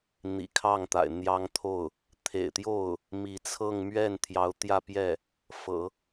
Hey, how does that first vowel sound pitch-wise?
low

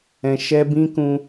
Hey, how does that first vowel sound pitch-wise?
high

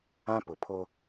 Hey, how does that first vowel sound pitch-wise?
high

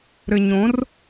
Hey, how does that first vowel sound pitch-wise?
low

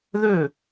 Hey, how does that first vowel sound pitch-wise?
falling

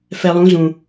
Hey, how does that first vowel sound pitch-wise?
low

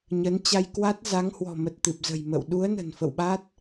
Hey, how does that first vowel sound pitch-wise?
rising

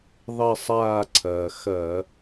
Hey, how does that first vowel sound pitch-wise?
falling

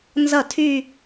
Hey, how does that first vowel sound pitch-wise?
falling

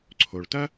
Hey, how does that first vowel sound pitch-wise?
low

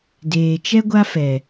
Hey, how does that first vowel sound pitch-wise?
low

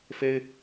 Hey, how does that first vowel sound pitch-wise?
high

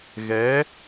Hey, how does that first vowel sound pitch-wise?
rising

